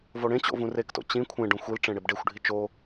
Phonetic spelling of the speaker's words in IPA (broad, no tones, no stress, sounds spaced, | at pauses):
v o ɽ ẽ t͡ɕ o̰ v ũ r e k t o̰ t͡ɕ ĩ kʷʰ ẽ ɖ õ xʷ i l ʈ͡ʂ ẽ ɽ e b ɖ e xʷ ɖʱ i t͡ʃ o